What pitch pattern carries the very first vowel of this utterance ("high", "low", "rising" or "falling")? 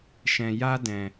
low